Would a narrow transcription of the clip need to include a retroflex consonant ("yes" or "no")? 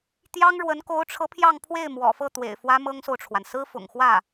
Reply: yes